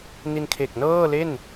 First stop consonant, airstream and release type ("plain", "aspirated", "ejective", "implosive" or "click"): aspirated